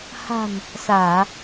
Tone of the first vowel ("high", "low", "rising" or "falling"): low